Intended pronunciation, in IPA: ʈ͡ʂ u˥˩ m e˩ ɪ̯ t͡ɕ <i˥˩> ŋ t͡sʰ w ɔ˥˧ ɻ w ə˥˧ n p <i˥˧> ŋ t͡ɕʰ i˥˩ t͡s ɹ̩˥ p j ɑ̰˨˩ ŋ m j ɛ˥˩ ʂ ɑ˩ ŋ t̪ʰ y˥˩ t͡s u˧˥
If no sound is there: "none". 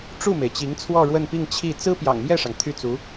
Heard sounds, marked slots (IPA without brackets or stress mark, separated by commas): i˧˥, i˥˧